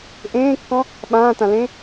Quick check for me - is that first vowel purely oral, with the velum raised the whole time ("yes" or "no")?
no